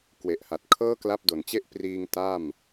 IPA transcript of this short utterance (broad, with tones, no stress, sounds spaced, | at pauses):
k w e˨˩ ʔ h a˨˩ t̚ kʰ ɤː˥˩ k l a˦˥ p̚ d o˨˩ n t͡ɕ e˥˩ ʔ p r iː˧ ŋ t a˥˩ m